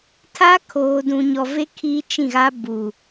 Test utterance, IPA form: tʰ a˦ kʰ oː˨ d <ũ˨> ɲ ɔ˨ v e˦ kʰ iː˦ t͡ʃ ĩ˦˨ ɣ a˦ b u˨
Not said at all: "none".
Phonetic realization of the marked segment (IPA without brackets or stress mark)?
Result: ũ˨